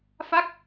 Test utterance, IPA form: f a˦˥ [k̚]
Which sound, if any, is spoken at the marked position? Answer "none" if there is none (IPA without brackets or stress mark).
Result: k̚